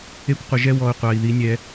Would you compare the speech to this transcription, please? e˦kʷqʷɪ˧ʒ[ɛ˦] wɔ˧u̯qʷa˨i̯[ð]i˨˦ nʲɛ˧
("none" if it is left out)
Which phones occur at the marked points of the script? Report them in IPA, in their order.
ɛ˦, ð

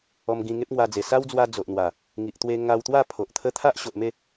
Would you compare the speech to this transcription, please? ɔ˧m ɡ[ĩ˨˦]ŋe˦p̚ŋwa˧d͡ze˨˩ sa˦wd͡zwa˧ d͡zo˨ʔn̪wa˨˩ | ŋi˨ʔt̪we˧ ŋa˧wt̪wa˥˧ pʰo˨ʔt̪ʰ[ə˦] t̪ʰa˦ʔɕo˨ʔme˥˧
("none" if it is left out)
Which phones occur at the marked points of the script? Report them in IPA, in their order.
ĩ˧, ə˦

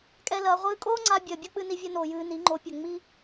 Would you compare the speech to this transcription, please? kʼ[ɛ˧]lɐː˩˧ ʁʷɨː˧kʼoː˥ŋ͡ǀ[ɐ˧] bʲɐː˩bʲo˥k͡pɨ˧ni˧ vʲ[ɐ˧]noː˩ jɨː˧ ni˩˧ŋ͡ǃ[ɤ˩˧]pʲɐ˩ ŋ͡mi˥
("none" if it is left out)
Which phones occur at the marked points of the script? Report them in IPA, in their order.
ɛ˧, a˧, ɐ˧, o˩˧

